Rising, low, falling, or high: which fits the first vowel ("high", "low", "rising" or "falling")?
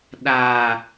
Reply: low